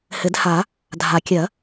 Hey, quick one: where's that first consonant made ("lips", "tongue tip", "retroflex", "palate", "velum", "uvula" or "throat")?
throat